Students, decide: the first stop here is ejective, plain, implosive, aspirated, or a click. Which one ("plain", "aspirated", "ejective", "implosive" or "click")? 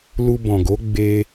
plain